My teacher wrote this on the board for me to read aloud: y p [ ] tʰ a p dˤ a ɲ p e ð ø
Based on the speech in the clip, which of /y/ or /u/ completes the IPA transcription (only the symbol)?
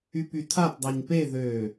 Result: y